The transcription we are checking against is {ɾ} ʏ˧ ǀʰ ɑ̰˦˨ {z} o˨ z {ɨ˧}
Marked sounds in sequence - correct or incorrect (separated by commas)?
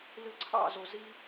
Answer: incorrect, correct, incorrect